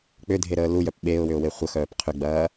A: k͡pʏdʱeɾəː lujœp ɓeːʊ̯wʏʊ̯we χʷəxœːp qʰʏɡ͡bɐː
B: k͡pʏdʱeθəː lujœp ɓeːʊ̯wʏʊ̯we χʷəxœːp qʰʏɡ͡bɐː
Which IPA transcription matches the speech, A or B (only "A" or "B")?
A